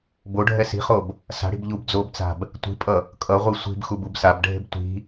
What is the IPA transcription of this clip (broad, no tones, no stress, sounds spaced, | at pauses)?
b o ɖʱ ɛ s i̤ χ o b | s a̤ ɽ i̤ b ʎ u b d͡z o b t͡s a̤ b | tʷ i̤ pʼ ʌ | kʼ ʌ ʁʷ i sʷ i̤ b x u b u b s a b ɖʱ e̤ b tʷ i̤